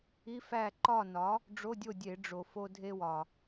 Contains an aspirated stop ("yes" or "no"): no